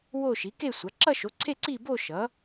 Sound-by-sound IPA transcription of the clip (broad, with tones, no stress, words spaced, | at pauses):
wo˥˧ ʃi˩˥ke˥˧sʷa˩˥ ǁʌ˥˧ʃo˩˥ǀʰe˥˧ ǀi˥˧bo˥˧ ʃʌ˩˥